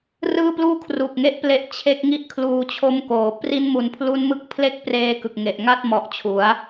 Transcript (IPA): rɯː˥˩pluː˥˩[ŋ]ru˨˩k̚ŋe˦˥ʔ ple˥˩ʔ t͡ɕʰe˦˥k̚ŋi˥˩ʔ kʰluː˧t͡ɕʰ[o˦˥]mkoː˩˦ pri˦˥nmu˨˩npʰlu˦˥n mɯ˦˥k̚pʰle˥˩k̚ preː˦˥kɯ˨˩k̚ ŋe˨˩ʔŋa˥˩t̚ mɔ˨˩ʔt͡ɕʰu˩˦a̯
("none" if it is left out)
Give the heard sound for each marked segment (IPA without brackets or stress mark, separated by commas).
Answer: kʰ, o˦˥